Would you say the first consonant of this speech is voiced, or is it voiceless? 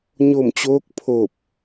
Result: voiced